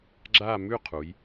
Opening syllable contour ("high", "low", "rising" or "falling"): falling